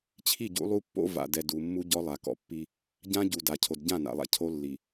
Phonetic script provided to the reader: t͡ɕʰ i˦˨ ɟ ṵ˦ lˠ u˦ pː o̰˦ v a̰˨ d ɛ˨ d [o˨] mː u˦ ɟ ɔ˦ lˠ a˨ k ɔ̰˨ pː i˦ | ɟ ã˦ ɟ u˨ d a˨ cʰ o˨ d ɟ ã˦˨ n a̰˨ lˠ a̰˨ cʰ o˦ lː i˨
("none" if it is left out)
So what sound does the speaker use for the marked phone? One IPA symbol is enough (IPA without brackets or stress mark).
u˨